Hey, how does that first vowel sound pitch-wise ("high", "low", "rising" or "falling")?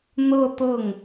falling